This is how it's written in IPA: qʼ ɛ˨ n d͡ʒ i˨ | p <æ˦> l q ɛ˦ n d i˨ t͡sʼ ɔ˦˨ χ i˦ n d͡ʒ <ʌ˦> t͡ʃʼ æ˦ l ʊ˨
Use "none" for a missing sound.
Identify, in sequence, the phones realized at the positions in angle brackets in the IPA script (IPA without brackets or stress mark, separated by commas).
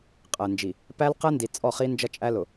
æ˦, ʌ˦